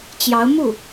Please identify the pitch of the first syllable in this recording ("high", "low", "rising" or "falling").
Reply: rising